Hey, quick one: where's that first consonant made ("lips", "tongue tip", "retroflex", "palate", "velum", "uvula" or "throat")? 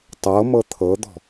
tongue tip